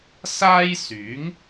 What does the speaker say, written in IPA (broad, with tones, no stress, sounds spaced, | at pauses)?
s aː˥ j s yː˨˥ ŋ